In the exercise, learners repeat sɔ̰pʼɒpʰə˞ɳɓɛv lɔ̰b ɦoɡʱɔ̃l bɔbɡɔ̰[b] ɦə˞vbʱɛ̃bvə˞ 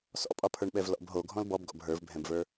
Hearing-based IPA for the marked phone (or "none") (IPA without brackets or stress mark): b